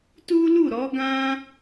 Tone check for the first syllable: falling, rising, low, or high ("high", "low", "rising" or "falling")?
high